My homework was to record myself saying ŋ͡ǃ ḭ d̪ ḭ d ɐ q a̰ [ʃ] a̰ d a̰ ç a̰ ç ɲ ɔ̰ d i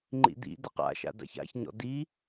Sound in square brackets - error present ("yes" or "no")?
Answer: no